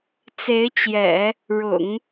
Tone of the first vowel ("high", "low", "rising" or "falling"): rising